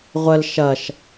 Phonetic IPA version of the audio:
ʁʷ ə l ʃ ɐ ʃ

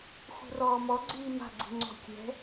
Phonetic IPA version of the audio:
x ṳ r ɔː m ɔ ɡ͡ǀ iː m a̤ ɡ͡ǀ i̤ ŋ͡ǀ ɔ̤ kʲ ɛ̤

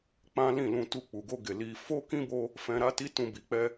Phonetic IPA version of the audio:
k͡p ã˦ l ĩ˦˨ l ũ˧ t u˧ k͡p u˨ ɡ o˧ ɡ e˨ l i˧ f o˦ k ĩ˦ b o˧ | f ɛ̃˧ ɾ a˦ t i˦ t ũ˧ b i˨ k͡p ɛ˧

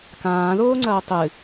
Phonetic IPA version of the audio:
k ãː ð oː ŋ͡ǀ ɐː tˤ ɨ

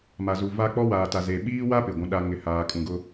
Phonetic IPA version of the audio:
m a˨ z u˨ v a˦ k͡p ɔ˦ w aː˨ t a˨ z e˨ ɓ iː˦ w a˦ p ɪ˨ ɡʷ ũ˦ ɗ a˦ ŋ ɪ˨ h aː˨ kʼ ũ˨ ɡ ʊ˦

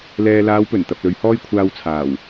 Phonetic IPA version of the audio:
l ɛː˨ l aː˨˧ w p ɵ˨˩ n t̪ ɐ˨ p̚ l ɵ˨˧ ɥ h ɔː˥ j kʷʰ aː˧ w t͡sʰ aː˨˩ w

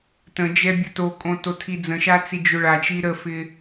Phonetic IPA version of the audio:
t ə̃ d͡ʒ ɛ bʲ ə t o kʼ õ t o tʰ i d͡z ə̃ ʃ a t͡s i d͡ʒ o ɭ a t͡ʃ i ɾ ə f ɪ

